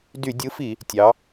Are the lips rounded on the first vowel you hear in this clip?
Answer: yes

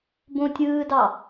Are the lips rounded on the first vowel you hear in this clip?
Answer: yes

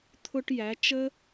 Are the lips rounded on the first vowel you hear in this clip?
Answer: yes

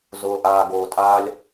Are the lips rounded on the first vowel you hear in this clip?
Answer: yes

